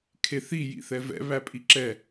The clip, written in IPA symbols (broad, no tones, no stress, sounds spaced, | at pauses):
kʰ e θ i j ḭ θ ɛ v ɛ̰ β æ pʼ i ǁ ɛ